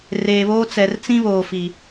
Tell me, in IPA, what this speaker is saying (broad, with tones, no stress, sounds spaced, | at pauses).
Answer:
r eː˨ β oː˦ t͡s ɛ˨ r t͡s ĩ˦ β oː˨ f i˨